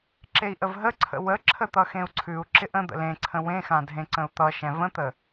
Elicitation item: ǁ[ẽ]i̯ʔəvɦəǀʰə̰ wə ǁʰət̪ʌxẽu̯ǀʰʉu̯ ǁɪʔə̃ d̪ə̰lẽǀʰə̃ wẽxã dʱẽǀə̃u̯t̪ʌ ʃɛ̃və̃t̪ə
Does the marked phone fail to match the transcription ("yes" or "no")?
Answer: yes